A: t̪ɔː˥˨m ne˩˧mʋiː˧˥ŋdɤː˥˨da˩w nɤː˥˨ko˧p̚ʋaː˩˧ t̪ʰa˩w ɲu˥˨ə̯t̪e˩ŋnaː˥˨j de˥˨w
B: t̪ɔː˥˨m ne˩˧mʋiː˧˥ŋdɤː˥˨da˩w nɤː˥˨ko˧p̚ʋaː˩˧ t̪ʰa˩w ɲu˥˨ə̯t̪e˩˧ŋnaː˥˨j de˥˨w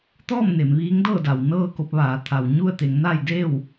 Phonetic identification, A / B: B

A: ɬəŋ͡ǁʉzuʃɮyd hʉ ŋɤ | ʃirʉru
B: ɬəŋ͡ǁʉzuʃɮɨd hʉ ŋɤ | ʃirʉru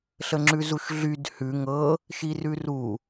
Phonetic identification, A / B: A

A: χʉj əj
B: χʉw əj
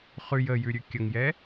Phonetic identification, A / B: A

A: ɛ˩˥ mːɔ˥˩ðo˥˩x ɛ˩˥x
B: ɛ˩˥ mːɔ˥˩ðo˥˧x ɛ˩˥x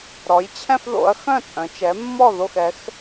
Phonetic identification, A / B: A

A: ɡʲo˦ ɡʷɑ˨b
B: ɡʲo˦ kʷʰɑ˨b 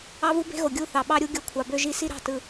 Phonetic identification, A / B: B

